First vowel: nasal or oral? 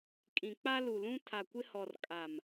nasal